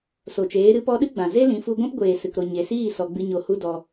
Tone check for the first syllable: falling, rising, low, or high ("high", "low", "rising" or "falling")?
low